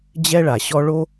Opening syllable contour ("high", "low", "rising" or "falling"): high